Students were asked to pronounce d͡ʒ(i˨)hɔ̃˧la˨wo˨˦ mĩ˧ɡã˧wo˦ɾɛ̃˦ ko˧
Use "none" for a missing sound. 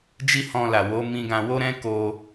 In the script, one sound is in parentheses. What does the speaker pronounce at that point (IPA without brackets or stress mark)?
i˦